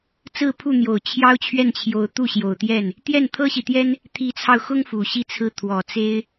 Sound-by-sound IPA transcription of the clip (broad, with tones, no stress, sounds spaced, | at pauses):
t͡s ɹ̩˥˧ pʰ u˥˩ n̪ j o˨˩ ʊ̯ t͡ɕʰ j ɑ˥ ʊ̯ t͡ɕʰ ɥ ɛ˥˩ n t͡ɕʰ j o˧˥ ʊ̯ t̪ u˥˩ ɕ j o˨˩ ʊ̯ t̪ j ɛ˥˩ n | t̪ j ɛ˥˩ n t̪ʰ ɤ˥ ɕ i˨ t̪ j ɛ˥ n | t̪ʰ i˧˥ t͡sʰ ɑ˧ ʊ̯ x ʊ˥ ŋ f u˨˩ ɕ i˥˧ t͡sʰ ɹ̩˥˩ t̪ʰ w ɔ˨˩ t͡s e˥ ɪ̯